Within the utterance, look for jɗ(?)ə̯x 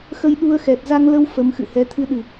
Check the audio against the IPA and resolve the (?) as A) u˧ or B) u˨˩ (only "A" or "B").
A